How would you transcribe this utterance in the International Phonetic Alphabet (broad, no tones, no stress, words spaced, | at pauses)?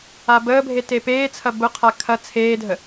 abəːbʱe tepeːt͡sʰɐ bʊqʰa kʰɐ t͡sʰeːdʱə